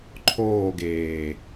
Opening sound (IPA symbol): ǃʰ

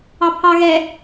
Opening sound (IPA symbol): ɑ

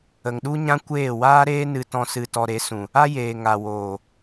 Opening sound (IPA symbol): ə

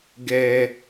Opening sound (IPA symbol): ɡ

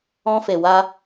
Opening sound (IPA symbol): ɔ̃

